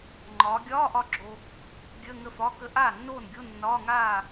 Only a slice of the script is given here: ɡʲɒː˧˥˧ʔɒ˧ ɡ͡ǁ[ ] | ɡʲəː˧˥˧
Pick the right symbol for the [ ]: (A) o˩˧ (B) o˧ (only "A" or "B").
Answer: B